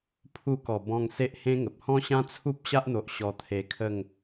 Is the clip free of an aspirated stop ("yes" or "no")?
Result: no